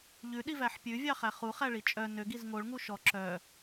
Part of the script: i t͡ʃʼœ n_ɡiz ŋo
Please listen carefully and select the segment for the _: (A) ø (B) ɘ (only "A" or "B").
A